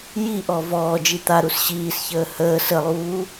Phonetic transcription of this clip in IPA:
j i ʔ ɔ v ɔː d͡ʒ i t̪ a ɾ u s ɕ iː s ç əː h əː s ə lˠ uː

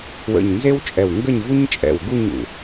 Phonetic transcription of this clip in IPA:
w ə̰˧˩ ɲ n z e˥ w t͡ʃʼ ɛ˧˩ w ŋ ɡ ə˥˧ ɲ v u˥ ɲ t͡ʃʼ ɛ̰˧˩ w ɡ u˥˧ ɲ ṵ˧˩

